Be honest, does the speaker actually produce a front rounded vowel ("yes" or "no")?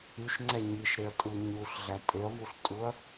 yes